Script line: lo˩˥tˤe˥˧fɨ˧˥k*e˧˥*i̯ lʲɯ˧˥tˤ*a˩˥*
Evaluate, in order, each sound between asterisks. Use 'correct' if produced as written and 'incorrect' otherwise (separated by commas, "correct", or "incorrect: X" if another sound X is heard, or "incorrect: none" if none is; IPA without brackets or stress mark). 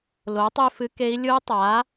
correct, correct